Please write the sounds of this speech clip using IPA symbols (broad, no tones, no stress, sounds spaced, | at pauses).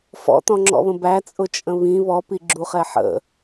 f ɔ̰ t̪ ɔ̃ ŋ͡ǁ ɔ̰ β ə̃ b æ t͡sʼ ʊ t͡ʃʼ ə̃ β ĩ β ɔ p i ɡ͡ǁ u χ ɛ ħ ə̰